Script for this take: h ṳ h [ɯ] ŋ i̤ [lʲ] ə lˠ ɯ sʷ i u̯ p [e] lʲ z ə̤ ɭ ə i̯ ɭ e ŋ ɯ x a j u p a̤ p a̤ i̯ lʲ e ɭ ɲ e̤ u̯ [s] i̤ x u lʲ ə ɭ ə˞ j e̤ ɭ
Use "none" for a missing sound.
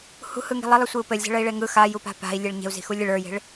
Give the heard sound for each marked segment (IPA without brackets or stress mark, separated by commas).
ɯ, lˠ, ɘ, z